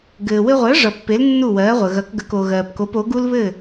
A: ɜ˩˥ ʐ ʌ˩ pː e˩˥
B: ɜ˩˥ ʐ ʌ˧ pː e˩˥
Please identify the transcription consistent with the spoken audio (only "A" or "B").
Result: A